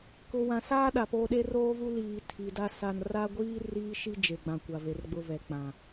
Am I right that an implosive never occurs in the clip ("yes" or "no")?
no